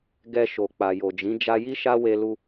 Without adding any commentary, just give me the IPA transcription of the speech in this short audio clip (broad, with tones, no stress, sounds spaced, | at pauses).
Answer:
ɡ ɛ˧ ʃ o˨ k͡p a˨ j o˨ d͡ʒ ĩ˨˦ d͡ʒ a˧ j i˦ ʃ a˦ w e˧ l u˧